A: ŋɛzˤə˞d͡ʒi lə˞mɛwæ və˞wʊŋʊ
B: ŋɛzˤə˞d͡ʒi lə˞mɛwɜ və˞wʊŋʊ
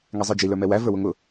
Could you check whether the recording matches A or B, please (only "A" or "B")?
A